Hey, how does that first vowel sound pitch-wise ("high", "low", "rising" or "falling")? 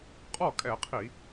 falling